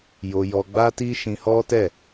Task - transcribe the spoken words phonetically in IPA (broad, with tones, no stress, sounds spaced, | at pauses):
j o˧ j ɔ˧ ɡ͡b a˦ t i˦ ʃ ĩ˧ h ɔ˦ t ɛ˦˨